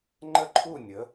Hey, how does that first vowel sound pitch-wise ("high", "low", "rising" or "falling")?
falling